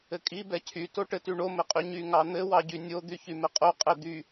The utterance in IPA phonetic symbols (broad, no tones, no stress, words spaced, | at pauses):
ɘkʼi bɛcʰy toʈɘtyɳo mɘqʼyɲy ŋɑn̪ɘ wɑɟynʲo d̪yçymɘqʼo qʼɛd̪y